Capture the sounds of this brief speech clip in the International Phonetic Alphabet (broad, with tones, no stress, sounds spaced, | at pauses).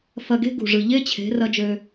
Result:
f ɐ˨ ɡ e̤˦ ɡ ṳ˨ ʐ ɯ˨ ʎ e˦ t͡ɕʰ e̤˨˦ r ɐ˦ d͡ʒ ø˦